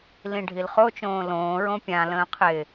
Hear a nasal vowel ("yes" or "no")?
yes